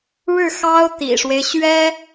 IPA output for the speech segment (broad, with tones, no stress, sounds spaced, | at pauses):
ɻ ɻ̩˥˩ x ɑ˥ ʊ̯ t̪ ḭ˨˩ ʂ w e˦ ɪ̯ ɕ ɥ ɛ˥